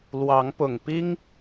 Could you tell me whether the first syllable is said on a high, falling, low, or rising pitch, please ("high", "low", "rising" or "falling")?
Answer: rising